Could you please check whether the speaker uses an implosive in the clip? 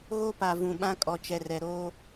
yes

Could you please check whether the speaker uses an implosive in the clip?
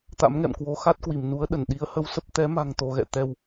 yes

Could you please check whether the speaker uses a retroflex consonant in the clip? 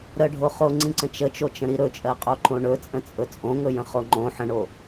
yes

